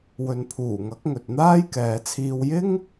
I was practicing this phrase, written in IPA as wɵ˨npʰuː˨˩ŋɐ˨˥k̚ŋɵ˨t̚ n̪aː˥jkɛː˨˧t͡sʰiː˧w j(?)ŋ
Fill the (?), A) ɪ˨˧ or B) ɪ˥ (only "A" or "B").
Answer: B